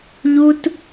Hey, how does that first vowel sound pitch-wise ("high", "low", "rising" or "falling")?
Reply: high